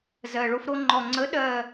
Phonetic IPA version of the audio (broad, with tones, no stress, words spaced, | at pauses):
zɜ˨˩ɭo˧fɾo˧ ŋ͡ǃɔ˨˩ŋ͡ǀə˨˥ ɗɜ˥˧